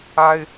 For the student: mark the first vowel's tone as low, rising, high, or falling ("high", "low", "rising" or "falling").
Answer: high